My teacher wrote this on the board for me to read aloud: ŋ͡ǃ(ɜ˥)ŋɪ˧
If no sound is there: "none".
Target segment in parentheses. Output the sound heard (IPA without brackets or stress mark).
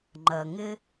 ɜ˩